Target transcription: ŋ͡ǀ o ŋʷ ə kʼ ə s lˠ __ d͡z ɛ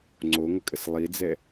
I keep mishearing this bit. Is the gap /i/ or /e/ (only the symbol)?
i